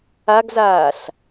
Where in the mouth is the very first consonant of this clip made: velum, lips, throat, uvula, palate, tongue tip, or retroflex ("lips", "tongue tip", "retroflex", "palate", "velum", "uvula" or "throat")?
velum